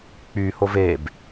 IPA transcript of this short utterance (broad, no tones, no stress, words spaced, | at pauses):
k͡pyhov eb